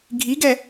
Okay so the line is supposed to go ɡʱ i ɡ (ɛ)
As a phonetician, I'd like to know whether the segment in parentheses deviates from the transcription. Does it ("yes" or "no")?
no